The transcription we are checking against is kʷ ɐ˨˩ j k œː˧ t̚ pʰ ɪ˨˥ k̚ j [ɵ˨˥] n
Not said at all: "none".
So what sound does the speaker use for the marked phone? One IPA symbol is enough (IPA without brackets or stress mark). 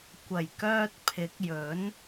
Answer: ɵ˨˥